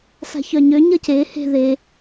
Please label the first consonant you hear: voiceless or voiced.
voiceless